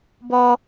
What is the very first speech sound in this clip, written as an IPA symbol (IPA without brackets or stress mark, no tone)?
b